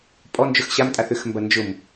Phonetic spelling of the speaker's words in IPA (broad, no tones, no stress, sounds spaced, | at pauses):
pʼ ɔ n d͡ʒ œ x ɕ a m tʼ a θ ʏ x m b ɐ n d͡ʒ ʊ m